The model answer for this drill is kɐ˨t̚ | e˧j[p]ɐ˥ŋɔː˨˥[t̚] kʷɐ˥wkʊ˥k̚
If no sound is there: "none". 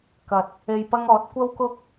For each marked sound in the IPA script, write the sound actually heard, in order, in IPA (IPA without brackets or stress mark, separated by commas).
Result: p, t̚